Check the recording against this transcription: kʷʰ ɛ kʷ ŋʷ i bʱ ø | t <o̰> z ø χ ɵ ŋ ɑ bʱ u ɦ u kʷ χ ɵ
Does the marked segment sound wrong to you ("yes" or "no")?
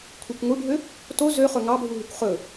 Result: yes